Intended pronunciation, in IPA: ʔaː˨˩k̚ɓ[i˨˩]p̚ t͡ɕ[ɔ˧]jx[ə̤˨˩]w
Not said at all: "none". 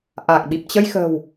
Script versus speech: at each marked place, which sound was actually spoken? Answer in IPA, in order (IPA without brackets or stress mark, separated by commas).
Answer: i˨˩, ə˧, ə̤˨˩